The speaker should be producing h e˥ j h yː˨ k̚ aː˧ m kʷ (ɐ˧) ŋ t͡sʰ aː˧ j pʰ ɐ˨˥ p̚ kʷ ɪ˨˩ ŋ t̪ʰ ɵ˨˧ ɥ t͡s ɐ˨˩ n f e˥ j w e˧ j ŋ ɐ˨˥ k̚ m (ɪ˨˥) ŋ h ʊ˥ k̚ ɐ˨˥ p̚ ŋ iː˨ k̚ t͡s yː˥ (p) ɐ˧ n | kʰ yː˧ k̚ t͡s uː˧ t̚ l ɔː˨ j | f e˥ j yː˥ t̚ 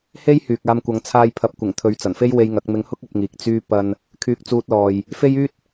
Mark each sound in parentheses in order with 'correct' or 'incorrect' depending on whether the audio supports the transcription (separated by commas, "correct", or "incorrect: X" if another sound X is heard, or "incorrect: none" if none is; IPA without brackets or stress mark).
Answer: incorrect: ɐ˨˧, incorrect: ɪ˧, correct